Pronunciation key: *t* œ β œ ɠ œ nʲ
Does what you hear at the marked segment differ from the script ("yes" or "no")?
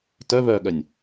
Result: no